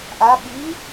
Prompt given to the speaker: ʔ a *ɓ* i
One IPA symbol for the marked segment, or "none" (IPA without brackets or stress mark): ɓ